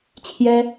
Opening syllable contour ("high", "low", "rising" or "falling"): high